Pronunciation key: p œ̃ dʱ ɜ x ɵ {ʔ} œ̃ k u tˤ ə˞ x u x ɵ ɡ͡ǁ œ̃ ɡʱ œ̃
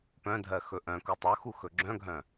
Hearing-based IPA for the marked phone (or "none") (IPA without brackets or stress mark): ʔ